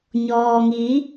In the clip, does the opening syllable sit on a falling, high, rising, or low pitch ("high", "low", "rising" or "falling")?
low